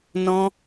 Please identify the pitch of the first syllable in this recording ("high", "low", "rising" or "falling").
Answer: high